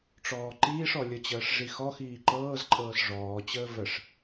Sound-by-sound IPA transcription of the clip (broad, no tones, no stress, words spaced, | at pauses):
ʈ͡ʂɔːǃiːʂɔ lʲət͡ɕəːʂ ʐixɔxiː ǃɤːzǃʼɤːs ʐɔːt͡ɕəː vəʂ